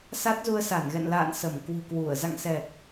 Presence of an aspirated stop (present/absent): absent